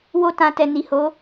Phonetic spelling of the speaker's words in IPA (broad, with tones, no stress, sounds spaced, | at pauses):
w o˧ t ã˨ t ɛ˨ n i˨ h o˨˦